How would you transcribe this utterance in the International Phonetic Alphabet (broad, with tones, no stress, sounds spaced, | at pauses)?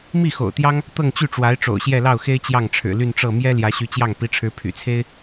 m i˥˩ x o̰˨˩ ʊ̯ t̪ j ɑ˥ ŋ | t̪ ɤ˥˧ ŋ t͡ɕ y˥˩ ʈ͡ʂ w a˧˥ ɪ̯ ʈ͡ʂ o̰˨˩ ʊ̯ ɕ j ɛ˥˧ l ɑ˥˩ ʊ̯ x e˥ ɪ̯ t͡ɕ j ɑ˥˩ ŋ ʈ͡ʂʰ ɻ̩˨˩ l y˥˧ n ʈ͡ʂ ɤ˥˩ m j ɛ˥ l j ä˧˥ ɕ y˧˥ t͡ɕ j ɑ˥˩ ŋ p i˧˥ ʈ͡ʂʰ ɻ̩˧˥ pʰ y̰˨˩ t͡sʰ e˥ ɪ̯